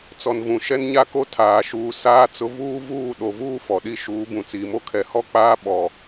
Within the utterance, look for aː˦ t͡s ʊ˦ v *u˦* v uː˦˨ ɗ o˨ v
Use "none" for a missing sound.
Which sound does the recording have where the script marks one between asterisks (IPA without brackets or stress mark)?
uː˦